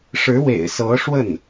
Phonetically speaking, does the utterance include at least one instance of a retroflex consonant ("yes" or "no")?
yes